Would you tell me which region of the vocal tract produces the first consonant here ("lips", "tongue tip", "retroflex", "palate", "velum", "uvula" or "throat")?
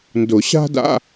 tongue tip